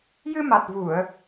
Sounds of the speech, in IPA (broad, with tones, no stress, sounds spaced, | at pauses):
j ɨ˧ m a˨˩ t̚ v u˨˩˨ ə̯